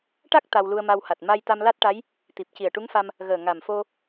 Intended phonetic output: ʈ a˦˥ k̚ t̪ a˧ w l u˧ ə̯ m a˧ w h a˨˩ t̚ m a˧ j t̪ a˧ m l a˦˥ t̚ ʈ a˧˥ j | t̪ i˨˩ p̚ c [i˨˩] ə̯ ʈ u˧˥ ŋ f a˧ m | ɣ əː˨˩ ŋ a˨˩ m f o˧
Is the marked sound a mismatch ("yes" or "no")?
no